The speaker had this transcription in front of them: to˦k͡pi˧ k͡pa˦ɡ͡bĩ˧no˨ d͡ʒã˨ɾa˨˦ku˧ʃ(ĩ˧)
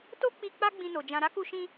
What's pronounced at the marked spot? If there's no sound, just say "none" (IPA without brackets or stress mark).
ĩ˧